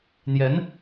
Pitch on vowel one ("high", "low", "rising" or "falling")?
rising